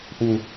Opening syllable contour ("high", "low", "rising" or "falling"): low